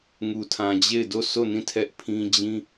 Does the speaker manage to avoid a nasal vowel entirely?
no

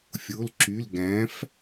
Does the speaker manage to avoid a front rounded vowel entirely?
no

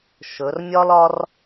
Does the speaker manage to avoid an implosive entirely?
yes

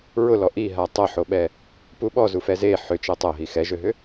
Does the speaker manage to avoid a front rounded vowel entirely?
no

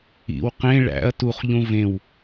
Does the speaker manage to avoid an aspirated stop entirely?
yes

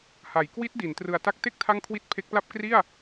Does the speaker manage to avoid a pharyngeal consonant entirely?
yes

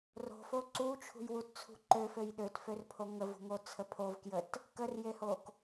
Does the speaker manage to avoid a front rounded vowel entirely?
no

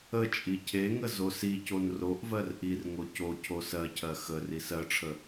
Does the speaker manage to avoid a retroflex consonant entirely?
no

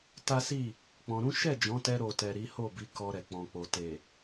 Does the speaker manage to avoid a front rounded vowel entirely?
yes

